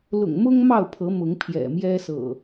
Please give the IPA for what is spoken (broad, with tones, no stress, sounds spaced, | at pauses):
l ʊ̰˨˩ ŋ m ʊ˦ ŋ m ɑ˥˨ ʊ̯ pʰ ɤ˨˦ m ʊ˨˦ ŋ pʰ j ɛ̰˨˩ m j ɛ˦ s ɤ̰˨˩